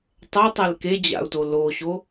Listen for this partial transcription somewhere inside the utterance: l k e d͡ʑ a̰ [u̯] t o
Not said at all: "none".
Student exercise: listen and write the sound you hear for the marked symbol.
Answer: u̯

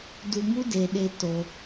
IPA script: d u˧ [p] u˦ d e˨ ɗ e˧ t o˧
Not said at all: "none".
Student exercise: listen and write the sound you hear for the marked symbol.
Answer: m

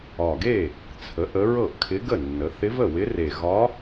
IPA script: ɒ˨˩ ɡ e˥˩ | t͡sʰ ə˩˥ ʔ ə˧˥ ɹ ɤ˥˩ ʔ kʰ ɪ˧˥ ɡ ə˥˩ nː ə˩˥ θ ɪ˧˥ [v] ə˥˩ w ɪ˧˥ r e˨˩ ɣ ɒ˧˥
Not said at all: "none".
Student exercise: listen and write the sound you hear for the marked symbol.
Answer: v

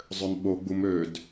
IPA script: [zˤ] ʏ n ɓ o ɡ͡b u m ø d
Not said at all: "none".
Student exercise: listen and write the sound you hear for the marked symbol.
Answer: zˤ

